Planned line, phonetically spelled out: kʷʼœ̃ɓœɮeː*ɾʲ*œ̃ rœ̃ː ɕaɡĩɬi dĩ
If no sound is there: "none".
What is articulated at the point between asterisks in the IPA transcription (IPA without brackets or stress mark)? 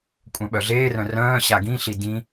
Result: r